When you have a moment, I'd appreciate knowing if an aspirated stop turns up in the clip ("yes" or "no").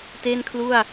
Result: yes